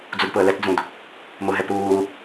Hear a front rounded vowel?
no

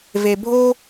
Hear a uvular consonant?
no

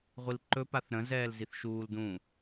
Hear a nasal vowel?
yes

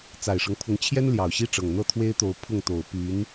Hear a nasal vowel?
no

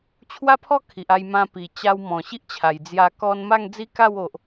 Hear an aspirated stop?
yes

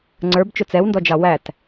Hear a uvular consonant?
no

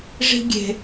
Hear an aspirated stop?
no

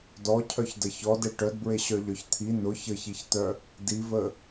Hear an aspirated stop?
yes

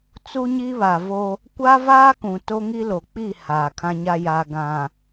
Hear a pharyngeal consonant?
no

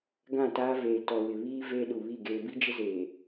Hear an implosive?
yes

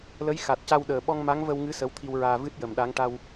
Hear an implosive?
yes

